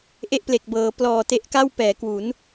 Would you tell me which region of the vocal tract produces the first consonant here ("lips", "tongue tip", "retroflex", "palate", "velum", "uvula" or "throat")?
throat